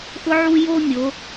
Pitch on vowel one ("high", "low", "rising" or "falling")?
high